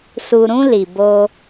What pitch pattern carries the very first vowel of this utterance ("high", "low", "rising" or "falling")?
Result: low